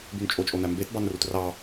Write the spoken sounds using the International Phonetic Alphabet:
bynt͡ʃʼot͡ʃʼonæ mbetbɑn rutrɑ

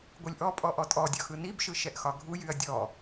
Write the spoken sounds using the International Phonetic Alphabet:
ɡʷɯlʲʔɔpʼɔ ʔɔtʼɔdʲɒ xɯnibʃɯ ʃɛʔxɒɡʱu jyɐ̯dʲɔ

